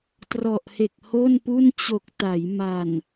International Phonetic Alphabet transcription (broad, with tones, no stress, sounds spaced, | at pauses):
t r ɔ˨˩ ʔ h e˨˩ k̚ h o˥˩ n p u˥˩ n t͡ɕ o˨˩ k̚ t a˩˦ j m a˨˩ n